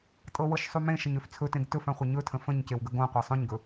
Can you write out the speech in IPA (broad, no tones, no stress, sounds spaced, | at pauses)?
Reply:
tʼ ɤ w ɤ ʃ sˤ u m ẽ ʃ ə ɲ ø f t͡sʰ ɵ t ẽ ɡ t ɵ f ã χʷ ɤ ɲ ɵ tʰ ə̃ f ə̃ ɲ c e w ɡ ə ɡ õ qʷ a sˤ õ ɲ ɡ ɵ